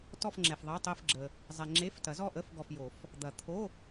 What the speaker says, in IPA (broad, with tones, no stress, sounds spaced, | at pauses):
t ɔ˥˧ f ŋ͡ǁ ɛ˨ f ðˤ ɛ˧˥˧ tˤ e˥˧ f ɡ͡ǁ ə˨ | zˤ ɛ˨ ŋ͡ǁ e˧˥˧ f t ɐ˨˩˦ z ɔ˥˧ ʔ ə˧˥˧ f ɡ ɔ˨ f j o˨˩˦ f | d̪ ɐ˨˩˦ t̪ʰ o˧˥˧